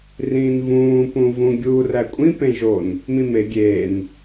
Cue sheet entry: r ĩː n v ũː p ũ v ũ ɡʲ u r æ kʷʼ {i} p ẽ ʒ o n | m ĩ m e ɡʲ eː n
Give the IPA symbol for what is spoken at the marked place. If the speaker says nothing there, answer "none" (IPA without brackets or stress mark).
ĩ